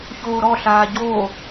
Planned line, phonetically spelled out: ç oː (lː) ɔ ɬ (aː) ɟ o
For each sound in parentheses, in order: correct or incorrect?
incorrect: ɾ, correct

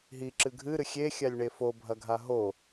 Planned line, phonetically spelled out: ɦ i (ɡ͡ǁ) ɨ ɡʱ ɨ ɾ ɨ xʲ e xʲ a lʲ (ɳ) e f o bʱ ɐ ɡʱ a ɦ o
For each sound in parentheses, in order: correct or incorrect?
incorrect: ǁ, correct

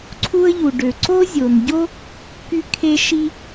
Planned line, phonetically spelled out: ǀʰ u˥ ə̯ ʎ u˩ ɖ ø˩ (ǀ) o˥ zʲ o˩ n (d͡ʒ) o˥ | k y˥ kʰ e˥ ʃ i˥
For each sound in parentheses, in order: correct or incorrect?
correct, incorrect: ɟ

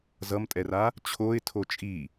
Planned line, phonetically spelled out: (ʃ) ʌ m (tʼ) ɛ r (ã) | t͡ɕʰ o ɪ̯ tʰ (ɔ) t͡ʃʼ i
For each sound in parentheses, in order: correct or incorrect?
incorrect: z, correct, incorrect: a, incorrect: o

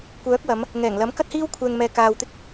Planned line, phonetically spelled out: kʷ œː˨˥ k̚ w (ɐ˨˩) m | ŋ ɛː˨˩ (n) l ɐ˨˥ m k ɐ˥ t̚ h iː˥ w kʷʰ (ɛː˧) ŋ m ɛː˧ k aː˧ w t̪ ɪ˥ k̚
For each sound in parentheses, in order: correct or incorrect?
incorrect: ɐ˨˧, incorrect: ŋ, correct

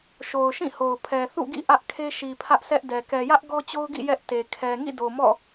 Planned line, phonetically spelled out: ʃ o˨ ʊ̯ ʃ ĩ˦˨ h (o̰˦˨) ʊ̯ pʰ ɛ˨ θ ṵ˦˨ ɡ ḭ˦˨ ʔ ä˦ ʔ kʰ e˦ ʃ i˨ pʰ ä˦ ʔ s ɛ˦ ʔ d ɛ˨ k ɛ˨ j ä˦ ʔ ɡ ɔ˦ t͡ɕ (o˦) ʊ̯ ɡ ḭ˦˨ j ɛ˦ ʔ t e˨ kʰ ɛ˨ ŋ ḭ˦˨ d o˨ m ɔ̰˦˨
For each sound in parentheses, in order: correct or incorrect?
incorrect: o˨, correct

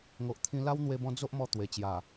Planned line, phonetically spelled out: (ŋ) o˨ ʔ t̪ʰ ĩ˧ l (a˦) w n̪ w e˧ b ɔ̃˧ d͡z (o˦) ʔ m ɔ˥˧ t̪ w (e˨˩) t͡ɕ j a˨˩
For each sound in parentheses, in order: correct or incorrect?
correct, correct, correct, correct

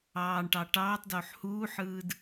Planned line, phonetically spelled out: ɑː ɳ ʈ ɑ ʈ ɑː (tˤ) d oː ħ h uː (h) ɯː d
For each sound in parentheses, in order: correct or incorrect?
correct, incorrect: ħ

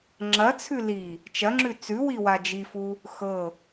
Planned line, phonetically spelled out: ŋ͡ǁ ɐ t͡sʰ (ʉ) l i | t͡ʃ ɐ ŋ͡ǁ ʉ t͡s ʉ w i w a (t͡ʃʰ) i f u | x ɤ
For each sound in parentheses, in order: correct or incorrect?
correct, incorrect: d͡ʒ

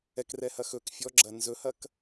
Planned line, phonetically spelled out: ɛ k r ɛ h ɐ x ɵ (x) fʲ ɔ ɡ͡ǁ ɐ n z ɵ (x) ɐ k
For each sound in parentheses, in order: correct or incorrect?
incorrect: k, incorrect: h

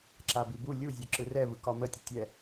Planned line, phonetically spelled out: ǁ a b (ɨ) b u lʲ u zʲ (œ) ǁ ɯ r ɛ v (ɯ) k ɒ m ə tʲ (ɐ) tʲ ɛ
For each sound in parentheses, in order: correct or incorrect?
incorrect: i, correct, correct, incorrect: ə

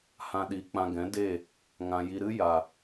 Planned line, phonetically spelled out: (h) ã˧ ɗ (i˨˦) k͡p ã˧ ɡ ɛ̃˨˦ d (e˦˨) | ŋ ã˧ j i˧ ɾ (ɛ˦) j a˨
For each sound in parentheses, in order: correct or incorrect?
correct, correct, correct, incorrect: ɨ˦

